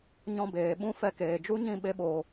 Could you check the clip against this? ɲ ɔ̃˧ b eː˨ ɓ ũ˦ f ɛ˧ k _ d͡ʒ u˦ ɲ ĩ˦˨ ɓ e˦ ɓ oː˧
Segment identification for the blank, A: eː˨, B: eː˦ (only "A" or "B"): A